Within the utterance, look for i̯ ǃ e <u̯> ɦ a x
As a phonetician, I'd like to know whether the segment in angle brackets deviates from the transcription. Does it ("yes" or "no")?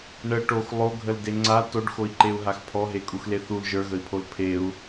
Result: no